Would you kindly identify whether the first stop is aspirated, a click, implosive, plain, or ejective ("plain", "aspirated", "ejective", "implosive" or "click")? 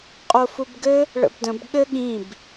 ejective